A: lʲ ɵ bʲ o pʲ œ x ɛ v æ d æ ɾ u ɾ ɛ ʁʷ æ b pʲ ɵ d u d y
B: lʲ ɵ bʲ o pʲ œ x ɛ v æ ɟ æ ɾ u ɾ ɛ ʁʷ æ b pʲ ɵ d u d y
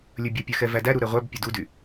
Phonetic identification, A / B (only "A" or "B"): A